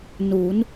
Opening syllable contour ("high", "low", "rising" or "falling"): rising